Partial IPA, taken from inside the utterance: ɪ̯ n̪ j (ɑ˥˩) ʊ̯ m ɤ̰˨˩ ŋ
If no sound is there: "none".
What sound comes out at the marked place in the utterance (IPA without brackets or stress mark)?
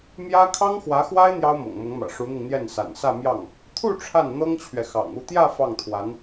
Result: ɑ˥